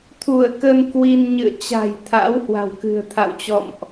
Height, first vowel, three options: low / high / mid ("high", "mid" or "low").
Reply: high